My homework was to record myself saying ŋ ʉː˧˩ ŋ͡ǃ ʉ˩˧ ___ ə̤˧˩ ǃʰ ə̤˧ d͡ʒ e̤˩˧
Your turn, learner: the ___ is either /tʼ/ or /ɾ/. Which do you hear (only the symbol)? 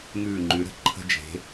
ɾ